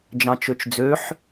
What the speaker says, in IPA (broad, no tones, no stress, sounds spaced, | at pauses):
d͡ʒ ɑ̃ t͡ʃ ø t͡ʃ d͡z ø ħ